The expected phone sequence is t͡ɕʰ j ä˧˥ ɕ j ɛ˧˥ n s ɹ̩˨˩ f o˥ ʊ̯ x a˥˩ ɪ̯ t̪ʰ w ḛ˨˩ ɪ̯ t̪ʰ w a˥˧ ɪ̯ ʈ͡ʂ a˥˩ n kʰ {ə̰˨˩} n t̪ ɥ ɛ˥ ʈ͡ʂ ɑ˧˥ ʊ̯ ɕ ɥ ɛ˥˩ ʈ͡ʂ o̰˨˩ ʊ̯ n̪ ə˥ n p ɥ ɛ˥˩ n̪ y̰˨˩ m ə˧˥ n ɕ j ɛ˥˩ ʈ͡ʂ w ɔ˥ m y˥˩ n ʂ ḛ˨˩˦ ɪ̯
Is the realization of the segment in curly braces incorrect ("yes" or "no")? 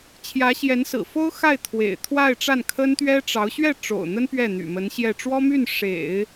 yes